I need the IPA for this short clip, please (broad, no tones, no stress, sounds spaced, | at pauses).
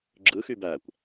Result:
ɡ͡ǁ ɯ x y b æ kʷ